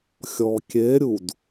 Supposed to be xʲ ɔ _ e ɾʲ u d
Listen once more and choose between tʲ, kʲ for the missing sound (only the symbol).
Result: kʲ